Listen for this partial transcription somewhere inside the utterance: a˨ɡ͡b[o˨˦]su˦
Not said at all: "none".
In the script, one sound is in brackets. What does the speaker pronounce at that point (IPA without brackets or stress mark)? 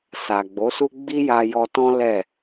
o˨˦